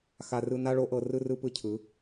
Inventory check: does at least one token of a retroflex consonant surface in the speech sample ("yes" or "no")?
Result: yes